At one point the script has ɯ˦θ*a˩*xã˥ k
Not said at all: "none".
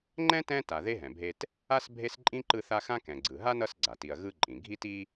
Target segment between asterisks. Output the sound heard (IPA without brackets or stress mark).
a˦